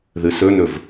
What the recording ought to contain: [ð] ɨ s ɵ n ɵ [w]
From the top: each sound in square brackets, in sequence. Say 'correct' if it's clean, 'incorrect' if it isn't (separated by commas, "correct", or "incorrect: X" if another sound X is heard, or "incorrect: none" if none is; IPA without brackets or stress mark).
correct, incorrect: v